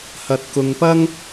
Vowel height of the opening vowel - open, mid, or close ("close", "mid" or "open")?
open